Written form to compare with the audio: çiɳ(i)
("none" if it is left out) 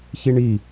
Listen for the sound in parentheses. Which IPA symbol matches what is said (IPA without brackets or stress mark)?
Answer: i